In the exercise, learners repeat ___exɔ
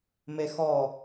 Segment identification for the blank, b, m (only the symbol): m